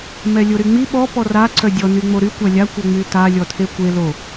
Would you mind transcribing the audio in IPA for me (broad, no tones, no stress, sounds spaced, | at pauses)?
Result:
m ɛ lʲ o ɾ y ŋ͡m i ɓ ɔ p ɔ r a ǀ œ dʲ ɔ n y ŋ͡m o ɾ y kʷ a lʲ a kʷ ə ŋ͡m y t a lʲ ɔ tʰ e kʷ e l o